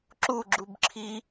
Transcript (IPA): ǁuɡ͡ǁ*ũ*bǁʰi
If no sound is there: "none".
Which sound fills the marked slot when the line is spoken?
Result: u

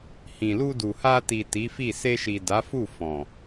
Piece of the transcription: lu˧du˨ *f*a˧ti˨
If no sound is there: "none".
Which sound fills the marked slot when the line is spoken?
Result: h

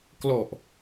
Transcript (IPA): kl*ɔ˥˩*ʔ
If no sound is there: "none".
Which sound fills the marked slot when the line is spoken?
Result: ɔ˨˩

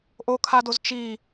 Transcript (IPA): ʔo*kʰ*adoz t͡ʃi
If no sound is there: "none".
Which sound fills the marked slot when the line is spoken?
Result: kʰ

